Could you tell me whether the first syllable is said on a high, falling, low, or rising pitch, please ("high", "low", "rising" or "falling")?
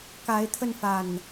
rising